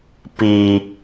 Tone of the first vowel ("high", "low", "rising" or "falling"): low